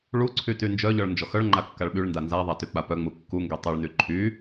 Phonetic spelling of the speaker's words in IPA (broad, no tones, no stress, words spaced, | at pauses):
ɭuǀʰy tynd͡ʒœʎɔɭ nd͡ʒɔxœɭŋ͡ǃa kːaɭɓyɭnda nzaðˤa tyk͡papœŋ͡mu kːuŋɡø tˤuɭny ǃʰy